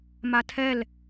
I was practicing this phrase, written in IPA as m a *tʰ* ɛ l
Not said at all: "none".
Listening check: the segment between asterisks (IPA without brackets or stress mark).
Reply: tʰ